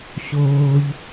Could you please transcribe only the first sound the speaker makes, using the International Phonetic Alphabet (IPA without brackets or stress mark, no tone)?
ɕ